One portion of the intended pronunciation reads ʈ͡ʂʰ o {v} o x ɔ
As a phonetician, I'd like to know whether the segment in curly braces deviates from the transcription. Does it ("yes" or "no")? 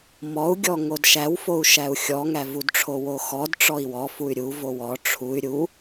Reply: yes